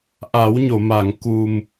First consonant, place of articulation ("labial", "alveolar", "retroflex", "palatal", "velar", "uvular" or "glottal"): glottal